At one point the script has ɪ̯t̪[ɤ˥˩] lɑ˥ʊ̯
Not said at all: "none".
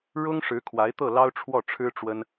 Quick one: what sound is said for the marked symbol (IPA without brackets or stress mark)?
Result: ɤ˥˩